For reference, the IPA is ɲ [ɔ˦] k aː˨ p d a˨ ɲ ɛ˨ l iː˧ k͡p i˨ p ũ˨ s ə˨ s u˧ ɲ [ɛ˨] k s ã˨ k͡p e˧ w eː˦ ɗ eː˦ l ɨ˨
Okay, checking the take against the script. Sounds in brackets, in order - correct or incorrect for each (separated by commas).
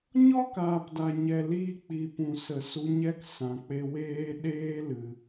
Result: correct, incorrect